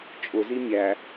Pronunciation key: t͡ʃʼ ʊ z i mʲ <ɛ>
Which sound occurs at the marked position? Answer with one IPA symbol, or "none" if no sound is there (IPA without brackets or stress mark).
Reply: æ